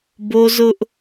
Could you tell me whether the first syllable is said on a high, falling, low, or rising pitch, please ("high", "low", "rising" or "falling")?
high